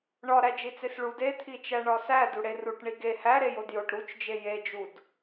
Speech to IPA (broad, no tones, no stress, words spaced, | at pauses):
ɳɒ ɾæd͡ʒit͡sesɭud et̪ʰit͡ʃæ ɳɒsæ duɽeruʈ ɳiɡe hæ ɾejodjoʈ ɾut͡ʃd͡ʒe jed͡ʒud